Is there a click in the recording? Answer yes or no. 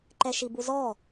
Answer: yes